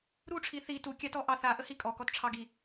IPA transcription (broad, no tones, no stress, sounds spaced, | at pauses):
ɾ u ʈ͡ʂʰ i θ i t u kʲ a t ɔ ʔ ɑ θ a ʔ ə h i kʼ ɔ k ɔ t ʈ͡ʂʰ ɑ ɡ i